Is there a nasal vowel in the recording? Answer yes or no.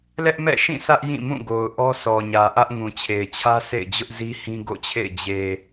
yes